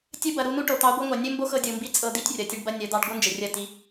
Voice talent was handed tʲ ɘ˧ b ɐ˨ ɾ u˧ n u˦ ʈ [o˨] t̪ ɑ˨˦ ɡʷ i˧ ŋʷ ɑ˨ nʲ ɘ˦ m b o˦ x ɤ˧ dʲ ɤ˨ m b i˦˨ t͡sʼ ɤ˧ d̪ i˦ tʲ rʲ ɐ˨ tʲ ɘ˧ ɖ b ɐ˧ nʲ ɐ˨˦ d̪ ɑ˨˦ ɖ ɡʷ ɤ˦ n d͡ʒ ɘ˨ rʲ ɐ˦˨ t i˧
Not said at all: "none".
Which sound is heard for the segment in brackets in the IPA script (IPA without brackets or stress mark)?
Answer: o˨